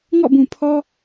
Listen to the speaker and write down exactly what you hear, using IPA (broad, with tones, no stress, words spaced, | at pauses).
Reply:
ŋɔ̰˦˨bũ˨pʰɔ˦